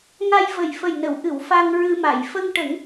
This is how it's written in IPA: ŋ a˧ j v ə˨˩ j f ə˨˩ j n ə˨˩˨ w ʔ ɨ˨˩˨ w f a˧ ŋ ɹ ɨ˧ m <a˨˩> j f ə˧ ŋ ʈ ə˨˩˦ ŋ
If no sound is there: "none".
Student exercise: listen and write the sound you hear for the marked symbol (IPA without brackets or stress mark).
a˨˩˨